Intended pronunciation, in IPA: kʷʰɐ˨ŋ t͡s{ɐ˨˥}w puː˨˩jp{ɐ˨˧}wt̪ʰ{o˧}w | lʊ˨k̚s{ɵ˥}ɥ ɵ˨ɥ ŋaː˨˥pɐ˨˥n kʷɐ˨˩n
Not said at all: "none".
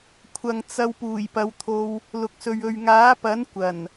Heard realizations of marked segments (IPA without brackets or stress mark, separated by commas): ɐ˧, ɐ˨˧, o˧, ɵ˨